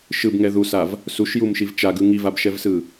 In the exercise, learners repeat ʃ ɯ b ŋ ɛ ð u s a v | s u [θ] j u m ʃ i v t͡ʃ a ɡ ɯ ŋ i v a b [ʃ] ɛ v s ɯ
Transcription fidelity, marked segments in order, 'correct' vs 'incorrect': incorrect, correct

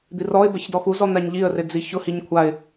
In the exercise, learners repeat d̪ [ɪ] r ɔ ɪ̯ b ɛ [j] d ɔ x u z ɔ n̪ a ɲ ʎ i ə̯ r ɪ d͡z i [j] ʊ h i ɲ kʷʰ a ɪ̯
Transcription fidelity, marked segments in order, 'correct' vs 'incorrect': incorrect, incorrect, incorrect

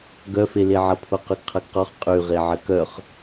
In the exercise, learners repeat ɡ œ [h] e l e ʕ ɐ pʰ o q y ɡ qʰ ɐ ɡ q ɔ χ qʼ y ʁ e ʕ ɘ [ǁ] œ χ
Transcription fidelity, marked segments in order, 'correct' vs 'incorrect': incorrect, incorrect

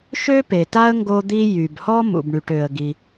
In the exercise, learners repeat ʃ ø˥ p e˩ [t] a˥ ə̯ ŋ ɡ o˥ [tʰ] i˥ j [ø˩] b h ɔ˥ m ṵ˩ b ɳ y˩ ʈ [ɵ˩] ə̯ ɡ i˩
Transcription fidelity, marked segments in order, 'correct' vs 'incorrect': correct, incorrect, incorrect, incorrect

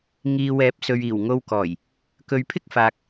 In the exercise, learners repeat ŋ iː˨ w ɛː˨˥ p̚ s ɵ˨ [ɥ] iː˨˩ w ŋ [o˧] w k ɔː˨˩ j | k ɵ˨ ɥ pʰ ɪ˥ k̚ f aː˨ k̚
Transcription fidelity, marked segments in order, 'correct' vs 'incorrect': correct, correct

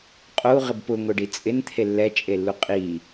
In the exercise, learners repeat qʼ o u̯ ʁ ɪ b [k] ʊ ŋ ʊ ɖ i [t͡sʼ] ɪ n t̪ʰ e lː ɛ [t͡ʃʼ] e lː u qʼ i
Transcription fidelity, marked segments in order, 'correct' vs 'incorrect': incorrect, correct, correct

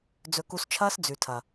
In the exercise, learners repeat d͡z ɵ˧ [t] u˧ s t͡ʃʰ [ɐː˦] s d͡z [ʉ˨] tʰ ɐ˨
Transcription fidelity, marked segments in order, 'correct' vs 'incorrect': incorrect, correct, correct

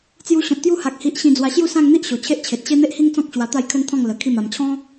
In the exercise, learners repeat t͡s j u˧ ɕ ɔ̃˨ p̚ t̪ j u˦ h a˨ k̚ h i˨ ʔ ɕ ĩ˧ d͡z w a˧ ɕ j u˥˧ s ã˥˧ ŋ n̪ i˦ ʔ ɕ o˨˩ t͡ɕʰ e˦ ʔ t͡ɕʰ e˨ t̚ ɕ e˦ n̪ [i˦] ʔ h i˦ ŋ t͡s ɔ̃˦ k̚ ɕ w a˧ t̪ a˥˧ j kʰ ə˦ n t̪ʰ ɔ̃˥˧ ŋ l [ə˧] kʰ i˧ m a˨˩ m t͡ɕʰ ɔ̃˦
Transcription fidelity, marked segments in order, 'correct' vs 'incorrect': incorrect, incorrect

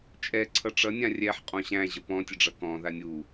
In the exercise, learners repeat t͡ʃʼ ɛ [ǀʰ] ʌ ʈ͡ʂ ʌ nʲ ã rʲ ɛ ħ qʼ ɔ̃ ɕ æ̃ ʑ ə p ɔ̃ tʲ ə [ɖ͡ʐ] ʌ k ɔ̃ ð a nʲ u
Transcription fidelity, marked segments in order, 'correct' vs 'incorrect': correct, correct

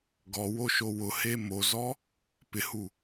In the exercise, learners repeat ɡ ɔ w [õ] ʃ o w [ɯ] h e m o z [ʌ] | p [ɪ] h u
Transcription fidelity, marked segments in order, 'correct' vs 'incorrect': incorrect, incorrect, incorrect, correct

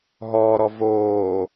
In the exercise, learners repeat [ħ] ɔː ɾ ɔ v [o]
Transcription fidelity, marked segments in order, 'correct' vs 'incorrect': incorrect, incorrect

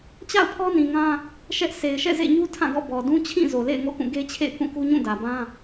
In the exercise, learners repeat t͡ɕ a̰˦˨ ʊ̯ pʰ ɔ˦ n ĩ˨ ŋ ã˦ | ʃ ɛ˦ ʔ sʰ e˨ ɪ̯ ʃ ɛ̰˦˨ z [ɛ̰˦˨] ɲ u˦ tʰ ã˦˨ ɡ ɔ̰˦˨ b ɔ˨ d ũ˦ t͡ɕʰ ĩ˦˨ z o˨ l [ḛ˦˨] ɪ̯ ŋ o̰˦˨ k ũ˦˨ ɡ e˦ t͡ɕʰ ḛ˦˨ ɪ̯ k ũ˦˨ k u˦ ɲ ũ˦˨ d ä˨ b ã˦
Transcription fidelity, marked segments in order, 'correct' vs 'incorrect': incorrect, correct

